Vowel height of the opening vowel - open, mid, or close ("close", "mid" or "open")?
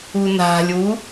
close